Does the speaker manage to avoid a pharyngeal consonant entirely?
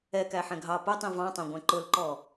no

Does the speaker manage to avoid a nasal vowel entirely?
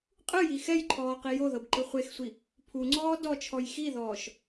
yes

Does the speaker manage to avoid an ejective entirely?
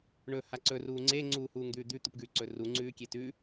yes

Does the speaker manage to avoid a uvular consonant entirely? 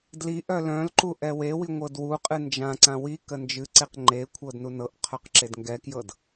no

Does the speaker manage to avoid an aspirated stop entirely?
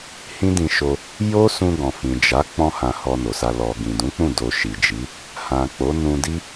yes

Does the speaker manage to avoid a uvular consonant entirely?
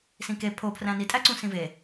yes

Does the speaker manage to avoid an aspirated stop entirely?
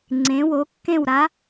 yes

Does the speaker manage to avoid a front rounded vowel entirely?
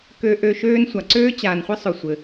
no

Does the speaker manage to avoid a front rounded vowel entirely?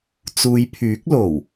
no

